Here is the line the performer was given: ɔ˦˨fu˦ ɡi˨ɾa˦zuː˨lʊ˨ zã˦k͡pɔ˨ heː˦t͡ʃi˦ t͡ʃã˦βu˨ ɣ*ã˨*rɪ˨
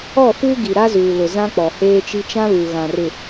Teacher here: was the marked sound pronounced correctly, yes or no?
yes